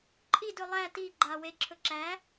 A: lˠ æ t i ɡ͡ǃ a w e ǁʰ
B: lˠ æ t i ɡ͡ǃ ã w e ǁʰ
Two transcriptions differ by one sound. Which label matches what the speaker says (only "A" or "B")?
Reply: A